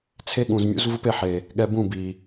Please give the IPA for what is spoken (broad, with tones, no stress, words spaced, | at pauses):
t͡sʰe˦ɠũ˨zmʲṵ˦zvu˦p e˧ħe˨ | ɠɛ˧bũ˦˨bi˨